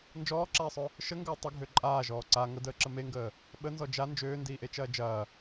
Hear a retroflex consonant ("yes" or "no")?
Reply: no